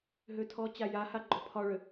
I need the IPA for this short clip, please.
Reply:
ɦ ø tʰ ɔ t͡ɕ a j a h a ɡ͡ǃ ɔ pʰ ɒ ɭ ø

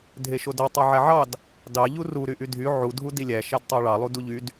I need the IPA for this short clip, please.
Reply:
dʱ e ʃ o d o tˤ o ʕ æ ʕ ɑ d | d ɑ ʎ u r u ɾ y ʔ y dʱ y ʕ u dʱ u d i lʲ æ ʃ æ d tˤ ɑ ɭ ɑ lˠ u d u ʎ y d

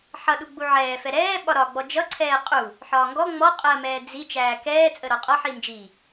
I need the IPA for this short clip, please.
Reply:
ħ ʌ ɗ u ɡ͡b u ʕ ɛː f ɛ ɾ ɛː ɓ ɒ ɾ ɒ ɡ͡b ɔ d͡ʒ ʌ ǀʰ ɛː qʼ u | ħ ɒː ŋ ɡ ɔ ŋ͡m ɔ qʼ ɜ m ɛː d͡z i t͡ʃ æː k ɛː t͡sʼ ə ɾ ɔ qʼ ɒ ħ i n d͡ʒ i

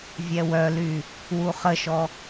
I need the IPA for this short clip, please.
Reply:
vʲ ɛ w œ l y | w u χ ə ʃ ɔ

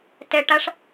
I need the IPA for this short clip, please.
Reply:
t ɛ ʈ a ʂ

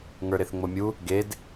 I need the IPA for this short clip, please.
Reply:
ŋ ə˞ ɾ e θ ŋ͡m o mʲ u | ɡ e d

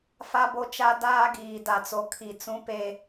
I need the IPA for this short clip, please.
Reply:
f a˦ b o˦ t͡ʃ a˦ d aː˦ ɡ iː˨ d a˨ t͡s o˨ kʰ i˨ t͡s ũ˦ p e˦

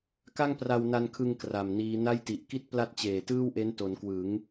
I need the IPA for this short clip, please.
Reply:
k a˥˩ ŋ p r a˧ w n a˧ n kʰ ɯ˧ ŋ k r a˨˩ m n iː˦˥ n a˥˩ j t i˨˩ ʔ k i˥˩ t̚ p l a˥˩ t̚ t͡ɕ eː˨˩ t ɯː˥˩ w ʔ e˦˥ n t o˩˦ n k w ɯ˩˦ ŋ

